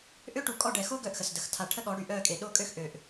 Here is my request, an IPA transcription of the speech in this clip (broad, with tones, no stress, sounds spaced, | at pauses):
ʔ ø˦ ʈ u˨ kʼ ɔ˦˨ ɖ ɛ˨ x o˦ ɡ œ˦˨ ʔ x ə˨ s d ə˨ x tʰ a˨ ʈʰ ə˦ ɠ ɔ˨˦ ɽ y˨ ʔ œ˦˨ kʼ e˨ ɗ o˦˨ kʼ ø˦ x ʔ ø˨ ʔ